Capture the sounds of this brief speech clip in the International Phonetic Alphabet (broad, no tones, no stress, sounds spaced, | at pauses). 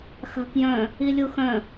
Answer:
x a̤ k j œ̃ | i lʲ u x œ̃